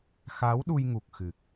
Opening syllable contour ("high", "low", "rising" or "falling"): rising